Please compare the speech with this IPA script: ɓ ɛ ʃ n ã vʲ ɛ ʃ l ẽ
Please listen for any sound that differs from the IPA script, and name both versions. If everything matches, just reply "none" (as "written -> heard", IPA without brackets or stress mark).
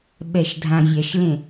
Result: n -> dʱ